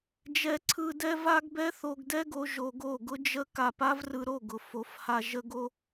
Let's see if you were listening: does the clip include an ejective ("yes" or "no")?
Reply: no